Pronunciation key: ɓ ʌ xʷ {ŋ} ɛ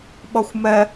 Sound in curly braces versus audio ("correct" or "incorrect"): incorrect